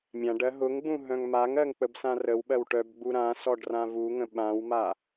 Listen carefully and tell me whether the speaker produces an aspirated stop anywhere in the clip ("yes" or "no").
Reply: no